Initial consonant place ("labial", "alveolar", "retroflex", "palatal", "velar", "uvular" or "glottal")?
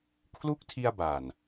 velar